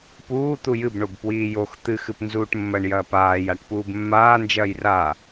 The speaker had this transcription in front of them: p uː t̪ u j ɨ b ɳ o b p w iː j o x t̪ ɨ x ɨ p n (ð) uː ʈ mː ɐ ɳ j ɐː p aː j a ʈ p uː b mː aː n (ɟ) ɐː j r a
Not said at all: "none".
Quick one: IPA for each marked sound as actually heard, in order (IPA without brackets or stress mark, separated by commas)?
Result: z, d͡ʒ